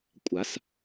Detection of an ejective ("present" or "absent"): present